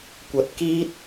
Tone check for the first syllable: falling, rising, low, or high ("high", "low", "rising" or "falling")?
rising